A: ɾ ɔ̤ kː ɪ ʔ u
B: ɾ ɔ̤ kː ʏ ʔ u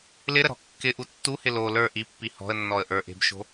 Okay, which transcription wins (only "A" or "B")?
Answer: A